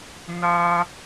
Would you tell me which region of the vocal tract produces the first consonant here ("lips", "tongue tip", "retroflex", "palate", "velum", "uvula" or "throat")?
tongue tip